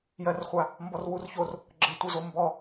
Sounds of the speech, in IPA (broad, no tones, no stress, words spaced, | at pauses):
jɜrχʷa | mbɔrwurçor | ɡ͡ǁətʷəzo mbɔ